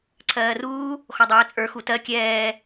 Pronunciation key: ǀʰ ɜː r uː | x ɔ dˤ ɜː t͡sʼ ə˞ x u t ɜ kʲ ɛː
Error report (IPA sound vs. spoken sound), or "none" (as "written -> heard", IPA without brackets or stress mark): none